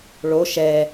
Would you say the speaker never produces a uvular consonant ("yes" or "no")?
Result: yes